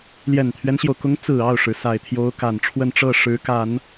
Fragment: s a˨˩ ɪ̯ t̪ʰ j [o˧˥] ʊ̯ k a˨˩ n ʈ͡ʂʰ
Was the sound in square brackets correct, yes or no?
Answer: yes